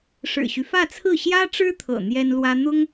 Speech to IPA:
ʂ ɻ̩˨˩ ɕ y˦ f ä˥˧ t͡sʰ ɹ̩˥˩ ɕ j ä˥ ʈ͡ʂ ɻ̩˥ t̪ʰ ɤ̰˨˩ n̪ j ɛ˥ n l w ä˥ n̪ ʊ˥ ŋ

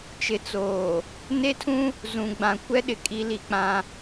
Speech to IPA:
t͡ʃ ɪ˨ t͡s oː˨ | n e˦ tʰ ũ˦ | z ũ˨ ɡ͡b ã˨ kʷ ɛ˦ ɗ ɪ˨ kʼ i˦ l i˦ k͡p ã˦

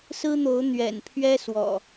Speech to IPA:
s ɹ̩˦ n̪ o˨˦ ʊ̯ n̪ ɥ ɛ̰˨˩ n pʰ ɥ ɛ˦ s w ɔ̰˨˩

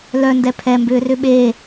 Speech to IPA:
l œ n d ɛ pʰ ɛ m b ʏː r ʏ ɓ eː

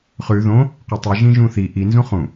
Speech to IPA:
χ ʉ ð õ | q ɵ tˤ ɨ ʒ ĩ ʒ ũ θ i ʔ i n z ũ χ ũ

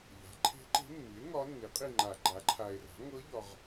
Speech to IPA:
ʎ a̤˩˥ ǃʰ e̤˧˥ ǃ e̤˧˥ mː i˩˥ e̯ ŋ ɒ˧˥ nː i˩˥ qʼ i˦˨ ŋ͡ǃ a˨˩˦ ɡ͡ǃ a˩˥ ǃʰ a˨ e̯ r a̤˩˥ ŋ ɤ˧˥ ʎ ɒ˨ ʁ

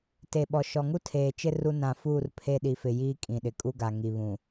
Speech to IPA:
t e˨ ɓ ɔ˨ ʃ ɔ˨ ŋ u˦ tʰ eː˨ t͡ʃ ɪ˦ r u˦ n ã˨ f uː˦˨ r pʰ e˦ ɗ i˨ f ɪ˨ j iː˦ kʼ ĩ˨ ɗ ɪ˨ kʼ u˦ ɡ a˨ ŋ i˨ β ũ˨

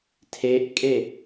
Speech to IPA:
tʰ e ʔ kʼ e

